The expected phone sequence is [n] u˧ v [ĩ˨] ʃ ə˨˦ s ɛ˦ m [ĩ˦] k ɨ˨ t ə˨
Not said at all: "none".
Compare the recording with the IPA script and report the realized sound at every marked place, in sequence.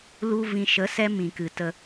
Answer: l, ĩ˨, ĩ˨

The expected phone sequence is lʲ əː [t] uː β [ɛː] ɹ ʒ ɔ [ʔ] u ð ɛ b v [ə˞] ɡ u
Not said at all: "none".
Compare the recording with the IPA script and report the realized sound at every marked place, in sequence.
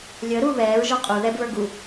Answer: ɾ, ɛː, qʼ, ə˞

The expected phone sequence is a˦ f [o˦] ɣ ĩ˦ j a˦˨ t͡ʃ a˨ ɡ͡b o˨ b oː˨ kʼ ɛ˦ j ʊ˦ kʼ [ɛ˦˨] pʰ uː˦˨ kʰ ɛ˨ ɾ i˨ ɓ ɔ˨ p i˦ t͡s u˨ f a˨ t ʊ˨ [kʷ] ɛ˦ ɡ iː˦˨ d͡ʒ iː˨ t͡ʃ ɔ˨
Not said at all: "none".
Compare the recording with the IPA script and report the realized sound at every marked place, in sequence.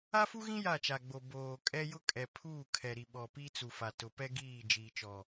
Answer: u˦, ɛ˨, p

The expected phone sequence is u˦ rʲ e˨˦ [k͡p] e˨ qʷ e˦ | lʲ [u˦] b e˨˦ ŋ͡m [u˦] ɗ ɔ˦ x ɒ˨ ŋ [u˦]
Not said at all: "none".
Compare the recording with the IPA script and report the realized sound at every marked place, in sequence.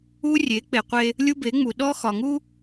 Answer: k͡p, u˦, u˨, u˦

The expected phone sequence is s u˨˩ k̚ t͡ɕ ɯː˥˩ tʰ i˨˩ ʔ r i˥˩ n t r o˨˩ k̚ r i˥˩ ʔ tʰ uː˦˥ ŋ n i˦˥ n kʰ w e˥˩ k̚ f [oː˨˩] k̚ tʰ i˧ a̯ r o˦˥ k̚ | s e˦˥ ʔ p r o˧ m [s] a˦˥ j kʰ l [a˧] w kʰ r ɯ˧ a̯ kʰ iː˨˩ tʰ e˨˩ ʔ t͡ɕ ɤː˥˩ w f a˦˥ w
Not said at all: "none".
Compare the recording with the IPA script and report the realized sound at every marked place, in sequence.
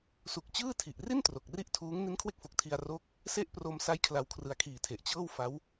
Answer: o˨˩, s, a˧

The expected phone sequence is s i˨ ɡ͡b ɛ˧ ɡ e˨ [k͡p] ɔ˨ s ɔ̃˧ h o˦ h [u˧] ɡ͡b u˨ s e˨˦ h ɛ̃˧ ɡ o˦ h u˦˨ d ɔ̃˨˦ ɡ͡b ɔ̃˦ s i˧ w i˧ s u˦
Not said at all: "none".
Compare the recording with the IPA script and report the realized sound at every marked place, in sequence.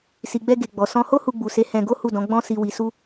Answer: ɡ͡b, u˧

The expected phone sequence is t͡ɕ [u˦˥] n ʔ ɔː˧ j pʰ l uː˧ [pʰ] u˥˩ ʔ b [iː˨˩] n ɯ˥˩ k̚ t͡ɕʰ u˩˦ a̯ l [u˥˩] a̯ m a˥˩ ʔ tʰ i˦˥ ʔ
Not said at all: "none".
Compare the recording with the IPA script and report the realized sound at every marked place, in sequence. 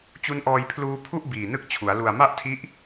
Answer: u˦˥, pʰ, iː˨˩, u˨˩

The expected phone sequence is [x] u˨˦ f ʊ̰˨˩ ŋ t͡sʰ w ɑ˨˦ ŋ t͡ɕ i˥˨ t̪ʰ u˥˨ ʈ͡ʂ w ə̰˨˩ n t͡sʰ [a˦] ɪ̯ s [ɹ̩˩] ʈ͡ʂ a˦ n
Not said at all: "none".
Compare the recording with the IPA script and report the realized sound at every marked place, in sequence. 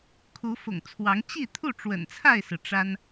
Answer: kʰ, a˥˨, ɹ̩˩

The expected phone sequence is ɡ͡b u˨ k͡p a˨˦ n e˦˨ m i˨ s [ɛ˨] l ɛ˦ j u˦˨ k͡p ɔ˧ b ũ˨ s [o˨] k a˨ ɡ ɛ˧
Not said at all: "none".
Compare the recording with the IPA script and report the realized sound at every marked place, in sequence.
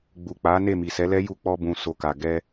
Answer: ɛ˨˦, o˨

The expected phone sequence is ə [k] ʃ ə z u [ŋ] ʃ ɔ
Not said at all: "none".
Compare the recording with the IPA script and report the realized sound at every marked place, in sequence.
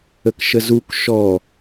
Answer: k, k

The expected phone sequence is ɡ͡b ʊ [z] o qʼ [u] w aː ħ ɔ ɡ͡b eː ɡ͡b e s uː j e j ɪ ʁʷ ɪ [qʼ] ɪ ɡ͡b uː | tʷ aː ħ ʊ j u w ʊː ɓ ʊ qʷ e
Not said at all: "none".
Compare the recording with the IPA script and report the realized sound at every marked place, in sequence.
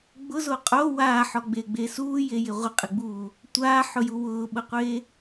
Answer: z, o, qʼ

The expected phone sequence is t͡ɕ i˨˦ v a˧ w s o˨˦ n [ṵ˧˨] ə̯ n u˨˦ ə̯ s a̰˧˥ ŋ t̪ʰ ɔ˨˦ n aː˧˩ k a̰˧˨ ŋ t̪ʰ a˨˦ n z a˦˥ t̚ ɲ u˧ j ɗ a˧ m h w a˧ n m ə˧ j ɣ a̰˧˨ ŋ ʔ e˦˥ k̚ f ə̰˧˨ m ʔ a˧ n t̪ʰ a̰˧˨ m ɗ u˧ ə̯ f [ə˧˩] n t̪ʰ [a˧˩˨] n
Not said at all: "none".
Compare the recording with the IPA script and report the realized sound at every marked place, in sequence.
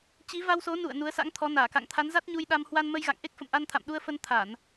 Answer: ṵ˧˨, ə˧, a˧˩˨

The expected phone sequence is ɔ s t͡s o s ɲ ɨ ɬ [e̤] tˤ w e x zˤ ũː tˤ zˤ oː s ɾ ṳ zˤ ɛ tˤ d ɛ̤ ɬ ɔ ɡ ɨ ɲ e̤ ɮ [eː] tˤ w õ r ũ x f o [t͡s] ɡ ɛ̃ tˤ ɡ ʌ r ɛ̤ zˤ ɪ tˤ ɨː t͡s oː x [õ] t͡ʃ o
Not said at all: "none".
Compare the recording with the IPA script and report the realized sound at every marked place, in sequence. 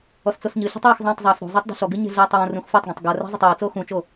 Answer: ɛ̤, ɛː, tˤ, ũ

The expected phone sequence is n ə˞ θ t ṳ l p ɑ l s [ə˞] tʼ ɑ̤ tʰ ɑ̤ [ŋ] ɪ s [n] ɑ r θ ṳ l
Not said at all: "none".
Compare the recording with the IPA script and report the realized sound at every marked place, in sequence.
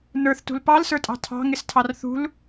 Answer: ə˞, ŋ, tʰ

